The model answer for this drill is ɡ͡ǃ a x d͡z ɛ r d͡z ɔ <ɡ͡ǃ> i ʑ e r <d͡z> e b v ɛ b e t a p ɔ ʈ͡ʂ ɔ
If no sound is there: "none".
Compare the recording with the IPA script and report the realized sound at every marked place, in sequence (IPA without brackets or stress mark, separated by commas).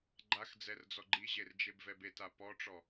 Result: ɡ͡ǃ, d͡ʒ